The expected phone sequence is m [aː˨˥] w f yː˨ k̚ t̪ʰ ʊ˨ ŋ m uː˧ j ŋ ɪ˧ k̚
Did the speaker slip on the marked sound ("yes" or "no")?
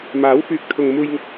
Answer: no